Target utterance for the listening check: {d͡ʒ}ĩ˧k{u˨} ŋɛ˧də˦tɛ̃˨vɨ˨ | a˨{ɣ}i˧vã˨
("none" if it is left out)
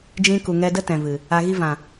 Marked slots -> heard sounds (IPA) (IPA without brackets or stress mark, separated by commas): d͡ʒ, u˨, ɣ